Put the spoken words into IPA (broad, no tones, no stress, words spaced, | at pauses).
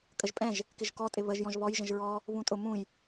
kʼəʒpʼɛ̃ʒ | kɪʒkɔ tʼɪβəʒjɔ̃ʒ βɔj ʒə̃ʒɹɔ | βũtʼʊ mũj